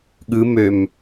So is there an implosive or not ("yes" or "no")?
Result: yes